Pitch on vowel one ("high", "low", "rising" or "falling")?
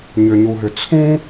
low